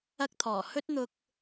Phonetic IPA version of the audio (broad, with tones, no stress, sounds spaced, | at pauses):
ɐ˥ k̚ t̪ʰ ɔː˨˩ h ɵ˥ t̚ n̪ ʊ˧ k̚